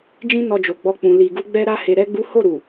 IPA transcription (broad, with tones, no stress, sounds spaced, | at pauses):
d͡ʒ ĩ˦ n ɔ˧ d͡ʒ o˨ ɡ͡b ɔ˧ k͡p ũ˨ l i˨ ɡ u˧ ɡ͡b ɛ˦ ɾ a˦ h e˧ ɾ ɛ˦ ɡ͡b u˦ h o˦˨ ɾ u˨